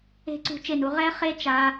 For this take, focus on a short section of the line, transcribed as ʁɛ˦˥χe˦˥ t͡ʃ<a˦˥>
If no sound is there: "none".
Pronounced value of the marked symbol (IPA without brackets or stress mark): a˦˥